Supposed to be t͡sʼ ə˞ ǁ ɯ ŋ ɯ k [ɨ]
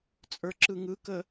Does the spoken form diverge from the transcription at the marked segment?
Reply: yes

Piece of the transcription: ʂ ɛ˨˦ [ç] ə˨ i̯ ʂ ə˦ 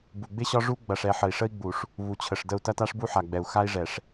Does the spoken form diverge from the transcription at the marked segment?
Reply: yes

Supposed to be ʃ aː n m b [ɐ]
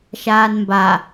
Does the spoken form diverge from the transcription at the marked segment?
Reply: yes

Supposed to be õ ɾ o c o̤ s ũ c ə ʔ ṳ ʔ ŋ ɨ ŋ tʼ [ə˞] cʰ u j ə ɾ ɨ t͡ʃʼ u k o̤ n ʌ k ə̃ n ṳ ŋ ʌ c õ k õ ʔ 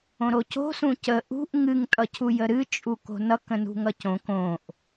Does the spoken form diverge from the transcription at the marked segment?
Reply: yes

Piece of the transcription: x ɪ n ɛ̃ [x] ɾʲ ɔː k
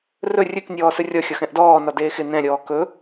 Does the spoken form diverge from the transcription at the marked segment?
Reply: yes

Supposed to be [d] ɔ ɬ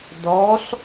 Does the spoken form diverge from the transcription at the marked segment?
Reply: no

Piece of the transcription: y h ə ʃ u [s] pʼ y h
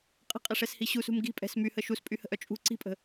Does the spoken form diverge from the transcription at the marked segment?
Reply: no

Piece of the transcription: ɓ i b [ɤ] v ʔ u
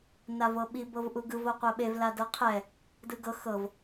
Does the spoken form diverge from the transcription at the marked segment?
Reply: no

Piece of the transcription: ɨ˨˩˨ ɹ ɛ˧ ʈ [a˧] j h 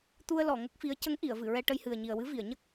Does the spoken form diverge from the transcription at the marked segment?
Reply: yes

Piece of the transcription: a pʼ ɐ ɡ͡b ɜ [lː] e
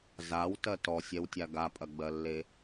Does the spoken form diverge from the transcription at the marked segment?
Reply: no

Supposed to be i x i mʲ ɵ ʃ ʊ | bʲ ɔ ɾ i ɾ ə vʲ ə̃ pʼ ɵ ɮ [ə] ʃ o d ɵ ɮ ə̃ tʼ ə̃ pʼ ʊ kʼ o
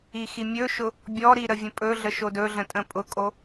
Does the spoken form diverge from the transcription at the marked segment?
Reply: no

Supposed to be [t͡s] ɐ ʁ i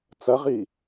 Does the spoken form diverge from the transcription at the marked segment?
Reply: no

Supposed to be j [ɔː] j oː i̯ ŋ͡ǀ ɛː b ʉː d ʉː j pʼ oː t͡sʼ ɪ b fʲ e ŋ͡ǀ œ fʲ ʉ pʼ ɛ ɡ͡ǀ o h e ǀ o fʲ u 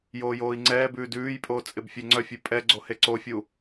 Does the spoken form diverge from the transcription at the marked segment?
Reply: yes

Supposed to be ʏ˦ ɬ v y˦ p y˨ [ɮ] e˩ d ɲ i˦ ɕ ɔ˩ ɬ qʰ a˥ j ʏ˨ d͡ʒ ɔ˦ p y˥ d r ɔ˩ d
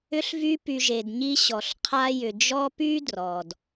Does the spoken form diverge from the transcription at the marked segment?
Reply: yes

